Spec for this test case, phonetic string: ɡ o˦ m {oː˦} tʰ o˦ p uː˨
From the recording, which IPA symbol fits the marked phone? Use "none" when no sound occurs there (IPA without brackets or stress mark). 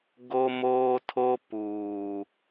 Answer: oː˦